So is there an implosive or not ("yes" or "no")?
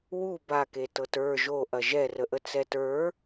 no